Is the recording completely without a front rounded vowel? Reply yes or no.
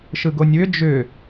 no